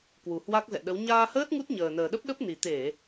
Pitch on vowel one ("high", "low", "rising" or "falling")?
low